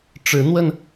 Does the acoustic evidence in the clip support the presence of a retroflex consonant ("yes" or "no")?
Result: yes